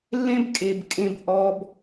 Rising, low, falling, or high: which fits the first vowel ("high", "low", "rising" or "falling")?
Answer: high